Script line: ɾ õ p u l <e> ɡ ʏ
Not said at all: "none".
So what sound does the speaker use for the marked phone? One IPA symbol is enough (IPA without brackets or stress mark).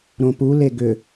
e